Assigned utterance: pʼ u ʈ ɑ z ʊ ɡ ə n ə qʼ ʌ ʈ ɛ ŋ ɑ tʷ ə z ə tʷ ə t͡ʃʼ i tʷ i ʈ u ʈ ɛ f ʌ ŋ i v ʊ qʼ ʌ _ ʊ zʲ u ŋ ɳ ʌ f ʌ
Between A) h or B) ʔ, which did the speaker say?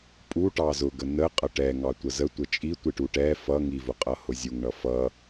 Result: A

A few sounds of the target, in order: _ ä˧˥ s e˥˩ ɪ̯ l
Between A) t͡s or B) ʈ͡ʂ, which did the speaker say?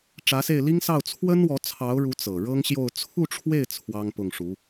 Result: B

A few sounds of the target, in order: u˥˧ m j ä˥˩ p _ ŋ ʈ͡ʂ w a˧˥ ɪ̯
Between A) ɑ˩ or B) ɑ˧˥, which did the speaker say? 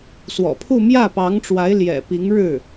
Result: B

